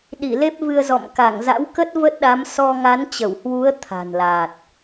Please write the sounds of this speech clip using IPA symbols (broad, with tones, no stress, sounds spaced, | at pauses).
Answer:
ɗ i˧˩ l e˦˥ p̚ v ɨ˧ ə̯ z ɔ̰˧˨ m k a˧˩ ŋ z a̰˧˥ w k ə˦˥ t̚ v ə˦˥ t̚ ɗ a˨˦ m s ɔ˧ ŋ a˨˦ n t͡ɕ ə˧˩ w h w u˨˦ ə̯ t̪ʰ a̤˨˩ n l a˨˩ t̚